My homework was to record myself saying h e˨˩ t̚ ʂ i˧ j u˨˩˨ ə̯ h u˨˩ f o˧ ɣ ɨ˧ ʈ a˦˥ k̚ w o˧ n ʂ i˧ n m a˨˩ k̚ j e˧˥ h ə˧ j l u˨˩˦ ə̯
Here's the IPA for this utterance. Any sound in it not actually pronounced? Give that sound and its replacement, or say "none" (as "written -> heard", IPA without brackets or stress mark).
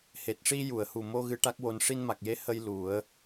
f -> m